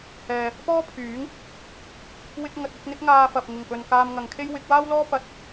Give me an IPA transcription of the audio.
hɛː˨ | pɔː˥pʰyː˨˥ŋ | wɪ˧k̚ŋɐ˨t̚ ʊ˨˥k̚n̪ɪ˥k̚ŋaː˧fɐ˨p̚ ŋɪ˨˩ŋpɵ˨n kaː˧mŋɐ˨˧ŋkʰe˥j wɪ˨˥k̚waː˥wlɔː˥ pɐ˨˥t̚

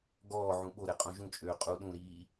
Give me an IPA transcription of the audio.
ɡɔːʕũ ɓoɾɛ qʼõʒũt͡ʃʼøː qʼu ɗũɾiː

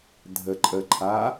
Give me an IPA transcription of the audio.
dʱə ǃʼə ǃʰa

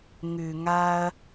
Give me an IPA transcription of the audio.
ŋʉ˩ŋa˨ɐ̯

